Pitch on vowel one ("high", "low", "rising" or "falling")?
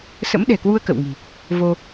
rising